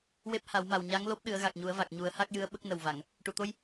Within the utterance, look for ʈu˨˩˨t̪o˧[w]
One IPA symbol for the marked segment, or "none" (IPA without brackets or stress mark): j